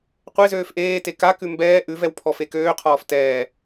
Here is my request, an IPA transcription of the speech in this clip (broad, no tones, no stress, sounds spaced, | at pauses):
qʷ e z øː f ʔ eː t e k a k ʉ m b ɛː ʔ ʉ v ɛ w pʰ ɔ f e k øː qʰ ɔː f t ɛː